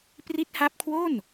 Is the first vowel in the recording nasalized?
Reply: no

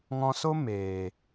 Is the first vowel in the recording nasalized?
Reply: yes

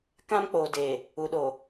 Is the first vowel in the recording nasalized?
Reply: yes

